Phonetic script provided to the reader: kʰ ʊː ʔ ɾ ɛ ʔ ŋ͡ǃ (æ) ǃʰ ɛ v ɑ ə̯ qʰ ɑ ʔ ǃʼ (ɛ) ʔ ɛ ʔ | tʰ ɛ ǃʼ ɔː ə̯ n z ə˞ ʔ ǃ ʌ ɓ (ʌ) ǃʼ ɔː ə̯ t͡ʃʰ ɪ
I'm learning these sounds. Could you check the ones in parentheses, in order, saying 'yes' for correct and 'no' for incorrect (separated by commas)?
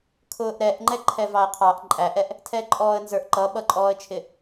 no, no, yes